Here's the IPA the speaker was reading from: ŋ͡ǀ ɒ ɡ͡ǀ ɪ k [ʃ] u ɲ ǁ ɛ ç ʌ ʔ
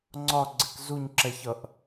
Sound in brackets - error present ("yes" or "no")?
yes